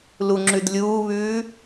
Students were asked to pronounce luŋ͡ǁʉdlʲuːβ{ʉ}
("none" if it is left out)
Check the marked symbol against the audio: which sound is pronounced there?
ʉː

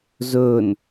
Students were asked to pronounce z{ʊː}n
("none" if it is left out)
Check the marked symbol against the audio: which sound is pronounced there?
ɵː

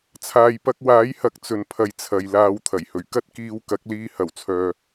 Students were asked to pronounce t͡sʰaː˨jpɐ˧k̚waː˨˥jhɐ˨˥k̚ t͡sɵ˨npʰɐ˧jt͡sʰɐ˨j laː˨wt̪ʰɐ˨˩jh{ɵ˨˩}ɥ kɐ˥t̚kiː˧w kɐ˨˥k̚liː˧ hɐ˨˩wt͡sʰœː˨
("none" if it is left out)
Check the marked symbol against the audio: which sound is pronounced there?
ɵ˨˩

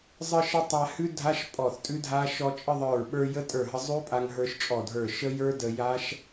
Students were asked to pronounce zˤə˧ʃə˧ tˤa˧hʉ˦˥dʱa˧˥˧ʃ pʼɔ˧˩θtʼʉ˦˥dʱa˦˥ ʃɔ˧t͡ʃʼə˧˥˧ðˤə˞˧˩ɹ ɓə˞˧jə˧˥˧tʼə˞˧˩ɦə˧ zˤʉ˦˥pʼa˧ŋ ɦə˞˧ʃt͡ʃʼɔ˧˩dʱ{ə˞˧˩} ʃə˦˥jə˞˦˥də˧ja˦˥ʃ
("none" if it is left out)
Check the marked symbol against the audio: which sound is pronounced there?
ə˞˧˩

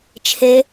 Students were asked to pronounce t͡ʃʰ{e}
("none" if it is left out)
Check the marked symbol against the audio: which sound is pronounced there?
e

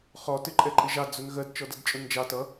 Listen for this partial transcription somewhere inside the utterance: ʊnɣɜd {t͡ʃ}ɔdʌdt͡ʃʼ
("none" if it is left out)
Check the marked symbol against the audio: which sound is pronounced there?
t͡ʃ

